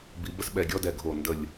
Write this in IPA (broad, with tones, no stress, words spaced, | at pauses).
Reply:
bi˨˦bə˥sɓɛ˧˩ ɡʲɔ˥dɛ˧˩ɡʱo˧˩ ndə˧˩lʲ